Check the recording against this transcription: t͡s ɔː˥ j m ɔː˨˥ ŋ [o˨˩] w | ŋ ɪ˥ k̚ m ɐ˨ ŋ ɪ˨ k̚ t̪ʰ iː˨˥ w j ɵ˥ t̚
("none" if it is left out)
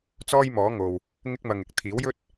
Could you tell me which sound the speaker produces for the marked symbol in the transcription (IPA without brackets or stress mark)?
o˨